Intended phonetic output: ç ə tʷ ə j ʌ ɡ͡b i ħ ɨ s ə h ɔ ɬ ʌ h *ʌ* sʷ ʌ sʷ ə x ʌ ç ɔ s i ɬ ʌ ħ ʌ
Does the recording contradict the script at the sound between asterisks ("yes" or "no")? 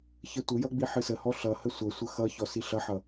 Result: yes